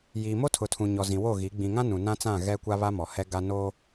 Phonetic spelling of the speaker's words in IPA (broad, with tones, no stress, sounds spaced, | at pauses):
j i˨ m o˦ tʰ ʊ˨ tʰ ũ˨ ɲ ɔ˨ z ĩ˨ w o˦˨ ɣ i˨˦ ɡ͡b ĩ˨ ŋ ã˦ n ũ˨ n ã˦ t͡s ã˦˨ ɣ ɛ˦ kʷ a˦ β a˦ m ɔ˨ h ɛ˦ ɡ a˦ n o˦